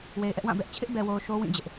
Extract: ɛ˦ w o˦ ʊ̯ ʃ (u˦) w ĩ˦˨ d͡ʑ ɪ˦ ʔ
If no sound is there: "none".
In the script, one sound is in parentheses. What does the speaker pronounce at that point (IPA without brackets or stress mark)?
o˦